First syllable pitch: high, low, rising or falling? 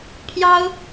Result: high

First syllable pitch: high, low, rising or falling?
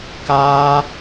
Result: high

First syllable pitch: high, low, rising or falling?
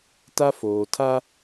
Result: high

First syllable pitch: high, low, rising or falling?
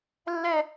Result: falling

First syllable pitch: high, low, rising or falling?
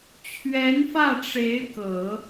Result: rising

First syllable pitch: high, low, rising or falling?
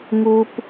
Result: high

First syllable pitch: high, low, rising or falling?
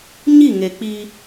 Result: falling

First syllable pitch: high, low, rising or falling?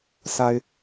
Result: low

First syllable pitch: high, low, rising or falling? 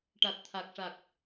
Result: low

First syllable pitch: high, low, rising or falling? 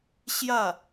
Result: falling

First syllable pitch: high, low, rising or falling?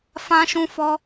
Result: high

